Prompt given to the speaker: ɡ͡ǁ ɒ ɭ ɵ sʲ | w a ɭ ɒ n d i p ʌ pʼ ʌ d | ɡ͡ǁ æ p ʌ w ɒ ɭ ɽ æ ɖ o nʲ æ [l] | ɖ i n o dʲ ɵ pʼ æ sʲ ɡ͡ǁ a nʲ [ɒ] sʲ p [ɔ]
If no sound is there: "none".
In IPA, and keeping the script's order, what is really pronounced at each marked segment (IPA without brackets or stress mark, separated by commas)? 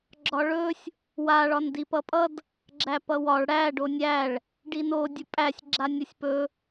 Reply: ɭ, ʌ, ɵ